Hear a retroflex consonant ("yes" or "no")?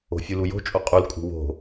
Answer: no